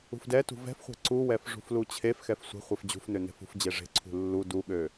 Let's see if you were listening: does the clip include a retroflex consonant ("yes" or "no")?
yes